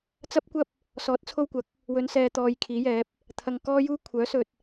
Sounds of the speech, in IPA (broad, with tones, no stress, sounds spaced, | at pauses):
t͡s ɐ˥ p̚ kʷ ɐ˥ p̚ | s ɔː˨˥ t̚ t͡sʰ o˧ w kʷ ɐ˨˥ k̚ | w ɵ˨˧ n s ɛː˨ t̪ ɔː˨ j kʰ iː˨˥ j ɛː˨˥ p̚ | t̪ʰ ɐ˨ ŋ k ɔː˥ j uː˥ kʷʰ œː˨˥ s ɵ˨ t̚